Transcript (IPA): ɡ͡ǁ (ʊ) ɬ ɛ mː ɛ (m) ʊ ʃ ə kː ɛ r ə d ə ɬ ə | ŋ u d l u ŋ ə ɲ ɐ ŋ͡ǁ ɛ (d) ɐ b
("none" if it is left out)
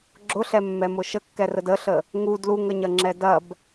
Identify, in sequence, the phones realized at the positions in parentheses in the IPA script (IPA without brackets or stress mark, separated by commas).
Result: ʊ, m, d